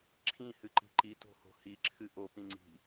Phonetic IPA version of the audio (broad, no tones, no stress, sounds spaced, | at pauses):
ǁʰ ĩ h ɨ ǃ i̤ ǃ i t o̤ h o̤ h i ǁʰ ɨ ʔ o p ĩ ŋ͡ǀ i̤